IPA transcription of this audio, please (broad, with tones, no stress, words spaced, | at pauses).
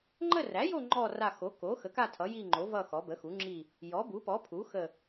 ŋ͡ǃə˦˨ræ˩˥jo˦˨ ŋ͡ǃɔ˦˨ ra˦˨ xo˩˥ko˩˥xə˩˥ka˦˨ tʰʌ˩˥ji˦˨ŋ͡ǃo˩˥ vʌ˦˨xɔ˩˥ bə˩˥xu˩˥ŋ͡ǁi˦˨ | jɔ˩˥bu˩˥pɔ˩˥pʰu˩˥ xə˦˨